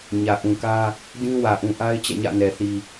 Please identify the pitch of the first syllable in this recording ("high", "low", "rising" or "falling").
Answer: low